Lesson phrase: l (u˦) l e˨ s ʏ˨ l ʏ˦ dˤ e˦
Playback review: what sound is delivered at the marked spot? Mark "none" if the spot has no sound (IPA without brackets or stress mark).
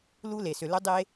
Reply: u˦